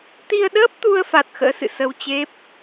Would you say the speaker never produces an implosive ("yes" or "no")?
no